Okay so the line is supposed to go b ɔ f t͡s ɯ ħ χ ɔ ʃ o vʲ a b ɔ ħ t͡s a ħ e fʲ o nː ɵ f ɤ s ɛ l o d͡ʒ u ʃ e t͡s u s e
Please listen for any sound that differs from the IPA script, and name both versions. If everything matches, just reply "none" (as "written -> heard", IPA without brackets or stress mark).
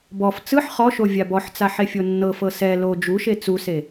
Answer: ɵ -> ɤ